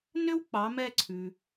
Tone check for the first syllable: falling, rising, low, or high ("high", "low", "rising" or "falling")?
high